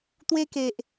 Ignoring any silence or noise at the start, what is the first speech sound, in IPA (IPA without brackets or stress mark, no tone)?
t̪